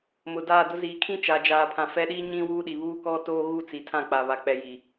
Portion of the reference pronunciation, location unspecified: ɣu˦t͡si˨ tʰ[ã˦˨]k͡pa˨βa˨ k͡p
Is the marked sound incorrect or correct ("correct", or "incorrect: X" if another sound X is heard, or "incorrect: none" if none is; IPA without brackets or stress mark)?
correct